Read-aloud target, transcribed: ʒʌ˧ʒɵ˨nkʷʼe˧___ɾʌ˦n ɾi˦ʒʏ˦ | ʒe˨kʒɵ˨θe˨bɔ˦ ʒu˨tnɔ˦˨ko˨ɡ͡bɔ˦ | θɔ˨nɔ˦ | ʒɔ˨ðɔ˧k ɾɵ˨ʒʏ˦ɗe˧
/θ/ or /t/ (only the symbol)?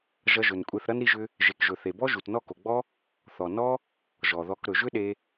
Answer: θ